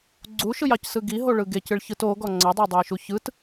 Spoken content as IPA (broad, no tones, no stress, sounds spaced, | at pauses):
ɡ͡ǀ u ʃ ɯ j ɑ c s ɯ ɡ i ɦ o ɭ ɯ ɡ e c ɨ ɭ ç ɯ t o ɡ ɔ ŋ͡ǀ ʌ dˤ e dˤ o j ʃ u ç ɯ t